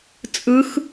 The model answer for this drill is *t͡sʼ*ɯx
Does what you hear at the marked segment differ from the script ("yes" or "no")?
no